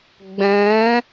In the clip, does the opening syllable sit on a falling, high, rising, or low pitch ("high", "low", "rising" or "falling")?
rising